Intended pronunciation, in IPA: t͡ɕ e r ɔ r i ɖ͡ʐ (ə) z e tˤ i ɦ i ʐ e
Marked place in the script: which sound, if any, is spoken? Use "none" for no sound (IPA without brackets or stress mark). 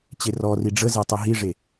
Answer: ə